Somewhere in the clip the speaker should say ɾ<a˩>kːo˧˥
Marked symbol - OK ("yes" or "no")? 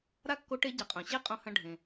no